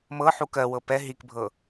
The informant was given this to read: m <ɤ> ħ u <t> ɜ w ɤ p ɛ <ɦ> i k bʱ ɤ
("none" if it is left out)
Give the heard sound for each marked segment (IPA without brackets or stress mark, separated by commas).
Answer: ɤ, k, ɦ